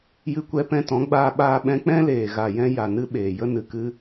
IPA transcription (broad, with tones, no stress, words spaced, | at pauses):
jɨ˧kʷɛ˧ pɛ̃˧tɔ̃˨˦ɡ͡baː˧ ɓaː˧ ɓɛ̃˧k͡pɛ̃˦leː˨ ɣa˨jɛ̃˧ ja˨nɨ˧ ɓeː˨ jə˧nɨ˨kɨ˧